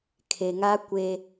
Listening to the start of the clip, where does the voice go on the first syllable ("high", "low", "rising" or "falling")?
low